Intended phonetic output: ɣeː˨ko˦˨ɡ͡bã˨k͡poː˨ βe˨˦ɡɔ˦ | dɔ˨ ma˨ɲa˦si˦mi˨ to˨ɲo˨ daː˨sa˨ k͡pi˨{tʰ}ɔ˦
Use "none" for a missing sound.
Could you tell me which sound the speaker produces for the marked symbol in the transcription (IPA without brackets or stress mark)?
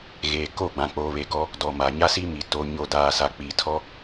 tʰ